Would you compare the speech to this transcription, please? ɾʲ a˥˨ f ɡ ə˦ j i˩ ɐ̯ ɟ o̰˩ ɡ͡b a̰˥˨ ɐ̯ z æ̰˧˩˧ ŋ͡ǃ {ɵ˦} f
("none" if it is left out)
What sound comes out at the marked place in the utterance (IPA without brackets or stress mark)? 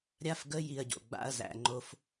o˦